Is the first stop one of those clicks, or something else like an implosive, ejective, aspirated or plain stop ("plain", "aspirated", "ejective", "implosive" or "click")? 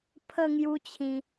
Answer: aspirated